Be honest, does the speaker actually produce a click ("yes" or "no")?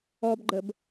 yes